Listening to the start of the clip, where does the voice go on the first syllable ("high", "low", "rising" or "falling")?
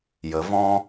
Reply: rising